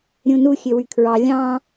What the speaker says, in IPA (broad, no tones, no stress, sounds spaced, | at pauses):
ɾʲ ũ n u xʲ ø w y kʰ ɹ ɑ lʲ ɑ̃